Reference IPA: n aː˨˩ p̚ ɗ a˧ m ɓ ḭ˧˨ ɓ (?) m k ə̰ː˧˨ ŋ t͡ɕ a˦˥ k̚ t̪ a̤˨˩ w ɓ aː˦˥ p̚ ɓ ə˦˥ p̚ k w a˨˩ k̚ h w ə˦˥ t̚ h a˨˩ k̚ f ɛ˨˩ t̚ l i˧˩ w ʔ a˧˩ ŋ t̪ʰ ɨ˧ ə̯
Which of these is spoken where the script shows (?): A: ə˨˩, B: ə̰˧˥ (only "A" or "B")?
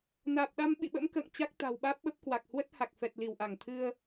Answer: B